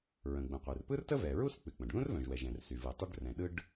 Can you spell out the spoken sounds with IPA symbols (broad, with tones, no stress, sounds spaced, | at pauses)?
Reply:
ɹ ə̃˩ ɡ͡b ə̃˩ qʷ ɨ˩ r p ɯ˥ r t ə˥ v ɛ˩ ɹ u˥ s k͡p ɨ˩ k͡p ə̃˩ ɖ ð ũ˥ r v œ̃˩ ʒ w ɛ˩ ʒ ɛ̃˩ r s y˩ v ɯ˩ tˤ œ˥ ɖ r ɛ̃˩ ɗ ɯ˥ ɖ